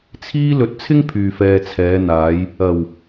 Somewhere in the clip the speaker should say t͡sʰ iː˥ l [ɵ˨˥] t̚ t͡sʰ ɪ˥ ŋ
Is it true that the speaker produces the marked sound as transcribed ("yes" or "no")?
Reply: yes